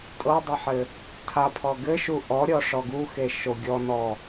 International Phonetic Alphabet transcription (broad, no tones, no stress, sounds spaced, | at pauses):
tʼ ɤ dˤ ɘ ħ ɘ | tʰ a pʰ ɔ ɡ ɘ ʃ u ʔ ɔ ɾʲ ɔ ʂ ɔ ɡ u x e ʃ o ɡʲ ɔ n ɔ